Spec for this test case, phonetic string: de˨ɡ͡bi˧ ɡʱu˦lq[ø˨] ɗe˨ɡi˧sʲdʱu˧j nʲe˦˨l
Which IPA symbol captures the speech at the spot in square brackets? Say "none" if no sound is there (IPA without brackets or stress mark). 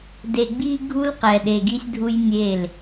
ɛ˨